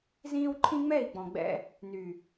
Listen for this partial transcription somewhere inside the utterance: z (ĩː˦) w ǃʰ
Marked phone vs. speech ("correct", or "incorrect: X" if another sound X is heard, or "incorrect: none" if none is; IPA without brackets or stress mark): correct